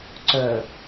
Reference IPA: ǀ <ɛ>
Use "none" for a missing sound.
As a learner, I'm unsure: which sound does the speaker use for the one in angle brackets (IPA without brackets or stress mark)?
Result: œ